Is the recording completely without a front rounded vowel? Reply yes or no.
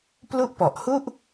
yes